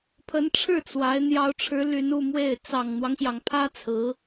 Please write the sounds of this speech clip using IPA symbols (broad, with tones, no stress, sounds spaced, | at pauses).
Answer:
pʰ ə˧˥ n ʈ͡ʂʰ ɻ̩˥˩ t͡s w a˧˥ ɪ̯ n̪ j ɑ˧˥ ʊ̯ ʈ͡ʂʰ ɻ̩˧˥ l y˧˥ n u˥˧ m w e˥˩ ɪ̯ t͡s ɑ˨˩ ŋ n̪ w ɑ˦ ŋ ɕ j ɑ˩ ŋ pʰ ä˥ t͡sʰ ɹ̩˧˥